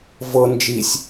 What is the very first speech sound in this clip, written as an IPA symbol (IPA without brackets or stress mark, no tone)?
v